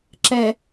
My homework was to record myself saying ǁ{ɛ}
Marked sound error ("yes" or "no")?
no